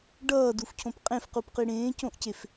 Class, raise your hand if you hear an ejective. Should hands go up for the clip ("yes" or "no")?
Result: yes